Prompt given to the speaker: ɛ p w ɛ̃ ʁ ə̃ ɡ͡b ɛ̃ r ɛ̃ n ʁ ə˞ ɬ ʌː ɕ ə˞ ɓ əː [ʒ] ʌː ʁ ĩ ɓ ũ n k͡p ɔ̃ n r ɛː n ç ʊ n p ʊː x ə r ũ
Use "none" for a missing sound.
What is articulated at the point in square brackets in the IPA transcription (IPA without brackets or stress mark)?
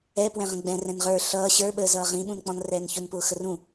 z